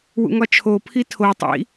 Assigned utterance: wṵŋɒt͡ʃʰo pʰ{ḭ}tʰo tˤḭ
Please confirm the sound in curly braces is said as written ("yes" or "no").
no